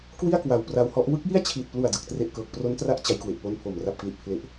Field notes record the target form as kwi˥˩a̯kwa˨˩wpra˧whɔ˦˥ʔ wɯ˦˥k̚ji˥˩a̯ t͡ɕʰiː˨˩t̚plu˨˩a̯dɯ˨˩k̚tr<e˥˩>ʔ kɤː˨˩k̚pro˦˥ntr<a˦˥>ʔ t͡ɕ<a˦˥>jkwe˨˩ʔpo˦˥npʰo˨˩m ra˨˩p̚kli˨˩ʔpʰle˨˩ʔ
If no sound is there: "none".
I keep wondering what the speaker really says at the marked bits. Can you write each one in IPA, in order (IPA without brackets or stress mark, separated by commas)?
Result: e˨˩, a˦˥, a˦˥